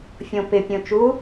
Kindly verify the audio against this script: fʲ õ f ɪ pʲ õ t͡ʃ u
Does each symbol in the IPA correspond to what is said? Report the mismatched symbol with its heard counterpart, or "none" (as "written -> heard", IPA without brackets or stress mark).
f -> p